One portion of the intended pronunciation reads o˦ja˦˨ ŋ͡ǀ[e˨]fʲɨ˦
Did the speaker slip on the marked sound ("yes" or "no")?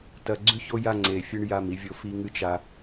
no